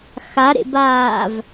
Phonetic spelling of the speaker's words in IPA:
xaɾḛbaːv

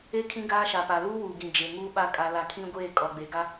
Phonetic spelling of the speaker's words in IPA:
e˦kʰĩ˦ ɡaː˦ʃa˨ pa˨luː˦wuː˨ɡĩ˨ d͡ʒe˨ŋuː˦ɓa˦ kʼa˦la˦ kʰĩ˦ɡʷeː˦˨ kʼɔ˨ɡ͡be˨ɡa˦

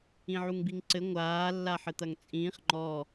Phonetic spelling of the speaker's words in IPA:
ĩʕuŋbiŋǀɘ ŋʷaː lːaħɘt̪ɐŋt͡sʼĩːχ ŋ͡ǃɔ

